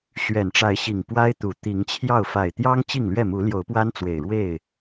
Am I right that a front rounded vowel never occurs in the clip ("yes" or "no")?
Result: yes